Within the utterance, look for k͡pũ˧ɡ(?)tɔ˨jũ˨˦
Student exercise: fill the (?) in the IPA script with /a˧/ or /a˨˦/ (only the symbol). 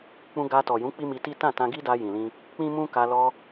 a˧